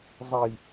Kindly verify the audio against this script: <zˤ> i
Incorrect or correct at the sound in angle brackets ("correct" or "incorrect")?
correct